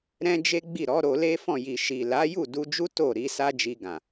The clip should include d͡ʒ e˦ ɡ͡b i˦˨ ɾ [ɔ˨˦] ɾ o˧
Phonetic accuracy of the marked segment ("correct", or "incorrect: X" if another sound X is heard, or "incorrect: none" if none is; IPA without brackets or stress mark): correct